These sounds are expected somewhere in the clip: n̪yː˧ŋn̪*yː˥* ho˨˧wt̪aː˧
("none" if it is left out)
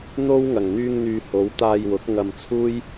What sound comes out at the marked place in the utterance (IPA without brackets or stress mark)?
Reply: yː˨